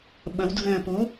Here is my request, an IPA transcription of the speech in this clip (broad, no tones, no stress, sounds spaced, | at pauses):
ɓ ə w dʱ ɘː p u